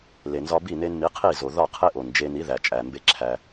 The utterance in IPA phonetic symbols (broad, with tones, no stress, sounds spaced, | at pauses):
l e˨ n z ɒ˧ b i˦˨ n e˧ n m i˨˦ qʰ i˦˨ z o˨ ð ɒ˦˨ qʰ e˦ ʔ o˨ n d͡ʒ e˧ n i˨˦ ð æ˨ t͡ʃʼ æ˨ m b e˧ ǁʰ æ˧